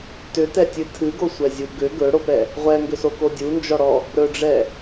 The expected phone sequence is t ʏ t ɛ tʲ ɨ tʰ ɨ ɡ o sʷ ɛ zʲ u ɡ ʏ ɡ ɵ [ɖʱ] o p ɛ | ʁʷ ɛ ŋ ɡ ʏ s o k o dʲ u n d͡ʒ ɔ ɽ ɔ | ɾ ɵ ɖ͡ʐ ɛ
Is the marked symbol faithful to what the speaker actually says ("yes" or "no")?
no